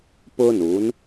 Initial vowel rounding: rounded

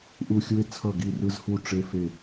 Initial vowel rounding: rounded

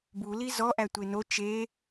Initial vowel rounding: rounded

